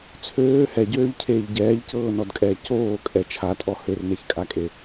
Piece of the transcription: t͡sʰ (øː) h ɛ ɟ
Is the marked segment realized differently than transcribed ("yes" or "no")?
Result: no